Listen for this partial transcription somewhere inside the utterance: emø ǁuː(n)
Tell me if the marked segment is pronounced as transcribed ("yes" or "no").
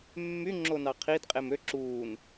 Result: yes